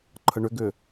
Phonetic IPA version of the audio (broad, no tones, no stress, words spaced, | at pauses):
ǃʰəɳʏɡʏ